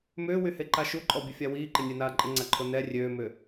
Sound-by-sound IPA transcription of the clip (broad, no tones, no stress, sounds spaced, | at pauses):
m ʏː w y h e ǃ a ʃ u ǃʼ ɔ bʲ ə fʲ a w iː ǃ ɪ nʲ ɛ n aː ǃʼ ɪ ŋ͡ǀ a ǃʰ o n ɛ rʲ øː m ʏ